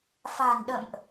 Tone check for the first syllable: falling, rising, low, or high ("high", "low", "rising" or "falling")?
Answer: low